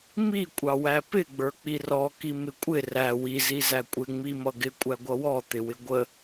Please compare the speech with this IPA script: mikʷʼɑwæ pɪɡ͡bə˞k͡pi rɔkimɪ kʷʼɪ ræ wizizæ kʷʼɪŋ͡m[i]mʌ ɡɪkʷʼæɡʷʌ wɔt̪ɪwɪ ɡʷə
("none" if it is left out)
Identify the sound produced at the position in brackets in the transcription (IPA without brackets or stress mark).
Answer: i